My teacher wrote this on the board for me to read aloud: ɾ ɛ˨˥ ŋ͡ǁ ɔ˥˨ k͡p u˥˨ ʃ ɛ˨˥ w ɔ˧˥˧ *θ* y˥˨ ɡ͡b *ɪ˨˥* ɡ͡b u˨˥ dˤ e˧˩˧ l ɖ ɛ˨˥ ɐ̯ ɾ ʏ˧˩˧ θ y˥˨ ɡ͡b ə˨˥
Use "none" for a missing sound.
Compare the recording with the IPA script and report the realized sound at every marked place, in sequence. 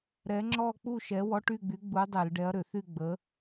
ʈ, y˨˥

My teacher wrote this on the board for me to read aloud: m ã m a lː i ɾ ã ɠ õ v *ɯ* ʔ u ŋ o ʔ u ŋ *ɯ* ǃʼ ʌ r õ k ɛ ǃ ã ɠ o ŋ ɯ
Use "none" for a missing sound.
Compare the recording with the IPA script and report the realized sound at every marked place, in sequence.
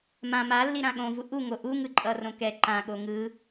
u, ɯ

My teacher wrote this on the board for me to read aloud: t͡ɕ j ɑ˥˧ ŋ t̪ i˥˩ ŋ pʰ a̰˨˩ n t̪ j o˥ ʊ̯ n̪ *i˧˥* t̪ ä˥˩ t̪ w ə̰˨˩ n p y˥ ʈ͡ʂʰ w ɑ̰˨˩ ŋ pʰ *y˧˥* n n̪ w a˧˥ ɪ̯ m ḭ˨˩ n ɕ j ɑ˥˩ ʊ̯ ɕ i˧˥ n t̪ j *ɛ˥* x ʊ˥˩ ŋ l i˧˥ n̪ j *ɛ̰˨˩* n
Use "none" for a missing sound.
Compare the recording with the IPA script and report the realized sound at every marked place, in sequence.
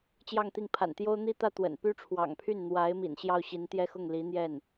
i˥, y˥˩, ɛ˥, ɛ˥˩

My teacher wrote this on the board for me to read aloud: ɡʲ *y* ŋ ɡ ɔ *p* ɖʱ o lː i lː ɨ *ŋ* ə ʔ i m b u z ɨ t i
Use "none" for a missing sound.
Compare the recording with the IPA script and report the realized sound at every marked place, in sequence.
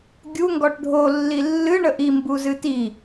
u, ʈ, ɳ

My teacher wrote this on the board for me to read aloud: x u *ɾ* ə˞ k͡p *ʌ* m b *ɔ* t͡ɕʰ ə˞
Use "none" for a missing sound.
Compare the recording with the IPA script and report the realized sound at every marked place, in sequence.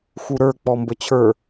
ɾ, ɔ, ə

